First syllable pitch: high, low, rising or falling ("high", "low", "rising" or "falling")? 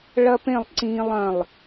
high